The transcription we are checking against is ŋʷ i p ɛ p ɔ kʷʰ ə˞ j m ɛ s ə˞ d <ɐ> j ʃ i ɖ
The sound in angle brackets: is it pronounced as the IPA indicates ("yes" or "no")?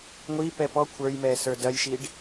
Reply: yes